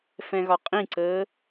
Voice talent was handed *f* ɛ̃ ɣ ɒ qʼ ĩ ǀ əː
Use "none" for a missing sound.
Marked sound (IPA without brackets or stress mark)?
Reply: f